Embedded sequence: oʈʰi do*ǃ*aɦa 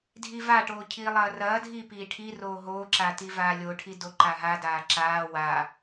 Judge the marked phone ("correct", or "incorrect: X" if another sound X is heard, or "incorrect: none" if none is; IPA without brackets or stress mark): correct